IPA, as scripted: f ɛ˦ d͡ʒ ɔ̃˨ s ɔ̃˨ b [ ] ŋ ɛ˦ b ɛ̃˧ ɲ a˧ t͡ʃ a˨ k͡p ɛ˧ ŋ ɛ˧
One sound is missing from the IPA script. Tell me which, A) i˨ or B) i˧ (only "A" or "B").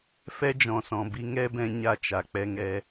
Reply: B